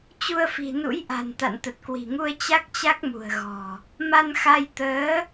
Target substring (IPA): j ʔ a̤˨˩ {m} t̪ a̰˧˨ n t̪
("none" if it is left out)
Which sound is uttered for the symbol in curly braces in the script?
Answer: n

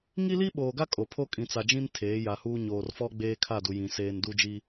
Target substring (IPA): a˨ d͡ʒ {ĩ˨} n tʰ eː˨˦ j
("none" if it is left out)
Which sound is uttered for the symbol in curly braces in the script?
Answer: ĩ˦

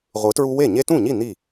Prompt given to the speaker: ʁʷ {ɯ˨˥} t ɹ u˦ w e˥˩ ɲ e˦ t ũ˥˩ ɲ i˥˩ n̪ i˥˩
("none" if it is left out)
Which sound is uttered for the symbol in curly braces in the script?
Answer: ɯ˨˥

